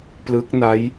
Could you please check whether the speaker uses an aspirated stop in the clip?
no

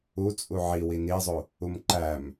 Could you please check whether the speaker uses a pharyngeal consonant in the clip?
yes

